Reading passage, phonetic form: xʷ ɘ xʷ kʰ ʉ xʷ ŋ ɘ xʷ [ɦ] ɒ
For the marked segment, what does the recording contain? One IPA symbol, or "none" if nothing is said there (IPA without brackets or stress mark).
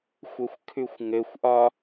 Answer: ʔ